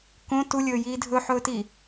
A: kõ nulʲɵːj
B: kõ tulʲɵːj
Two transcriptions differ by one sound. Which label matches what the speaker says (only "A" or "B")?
B